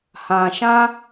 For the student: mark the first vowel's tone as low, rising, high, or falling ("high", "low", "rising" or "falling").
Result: low